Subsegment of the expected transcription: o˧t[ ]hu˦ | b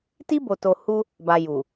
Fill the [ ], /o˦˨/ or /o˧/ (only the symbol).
o˧